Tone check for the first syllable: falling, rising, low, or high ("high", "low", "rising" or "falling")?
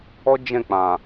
high